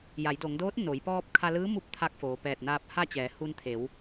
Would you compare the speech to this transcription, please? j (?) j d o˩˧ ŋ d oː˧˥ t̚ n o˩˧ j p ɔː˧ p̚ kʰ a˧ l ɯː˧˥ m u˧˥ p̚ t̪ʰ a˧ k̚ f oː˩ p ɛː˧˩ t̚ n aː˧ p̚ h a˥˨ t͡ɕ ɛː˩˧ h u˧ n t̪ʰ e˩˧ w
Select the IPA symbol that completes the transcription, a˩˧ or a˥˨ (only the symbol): a˩˧